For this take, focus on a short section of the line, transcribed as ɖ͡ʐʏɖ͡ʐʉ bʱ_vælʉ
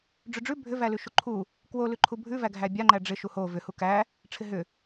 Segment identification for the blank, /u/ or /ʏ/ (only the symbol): ʏ